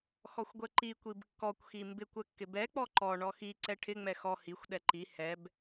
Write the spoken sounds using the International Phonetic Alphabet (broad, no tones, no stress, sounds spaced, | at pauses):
x ɔ xʷ ɡʷ ɛ ǃ i kʷ i b kː ɔ kʷ x i m b ɪ kʷ ɛ kː ɪ b ɛ k͡p ɔ ǃ ɔ ɳ ɔ x i ǀ ɛ ʈʰ ɪ ŋ͡m ɛ x ɔ h i xʷ ɗ ɛ ǃ i h ɛ b